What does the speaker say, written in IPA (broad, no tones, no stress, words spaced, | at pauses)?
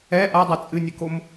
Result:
ɛ ʔadˤɛ t͡sʼɨnʲɘkom